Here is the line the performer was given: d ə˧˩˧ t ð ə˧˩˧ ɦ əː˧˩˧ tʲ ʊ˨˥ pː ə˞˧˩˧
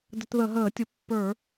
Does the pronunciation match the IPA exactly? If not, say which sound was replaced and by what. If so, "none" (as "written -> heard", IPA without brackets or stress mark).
none